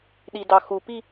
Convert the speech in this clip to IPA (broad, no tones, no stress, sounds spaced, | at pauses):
ɗ i d ɑ x u p i